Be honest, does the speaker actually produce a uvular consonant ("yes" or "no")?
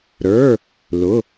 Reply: no